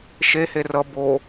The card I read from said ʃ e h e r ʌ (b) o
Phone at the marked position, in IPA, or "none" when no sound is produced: b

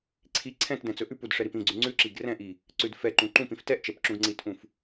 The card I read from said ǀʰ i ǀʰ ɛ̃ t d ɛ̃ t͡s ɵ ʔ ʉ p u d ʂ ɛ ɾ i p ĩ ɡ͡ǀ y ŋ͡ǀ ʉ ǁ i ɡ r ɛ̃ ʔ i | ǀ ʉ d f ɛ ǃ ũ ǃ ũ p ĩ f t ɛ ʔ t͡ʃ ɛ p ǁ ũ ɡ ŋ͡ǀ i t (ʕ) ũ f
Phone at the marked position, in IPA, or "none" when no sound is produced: ʔ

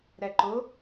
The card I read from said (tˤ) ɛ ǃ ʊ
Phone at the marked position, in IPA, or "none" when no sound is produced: ɾ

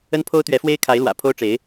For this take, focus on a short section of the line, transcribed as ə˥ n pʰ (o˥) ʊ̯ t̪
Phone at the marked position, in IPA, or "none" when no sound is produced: o˥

